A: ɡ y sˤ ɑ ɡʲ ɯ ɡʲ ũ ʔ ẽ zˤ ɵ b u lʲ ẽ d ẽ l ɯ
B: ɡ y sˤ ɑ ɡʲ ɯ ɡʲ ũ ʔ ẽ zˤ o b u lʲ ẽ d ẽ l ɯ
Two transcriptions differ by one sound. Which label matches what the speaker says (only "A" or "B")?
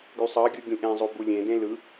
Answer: B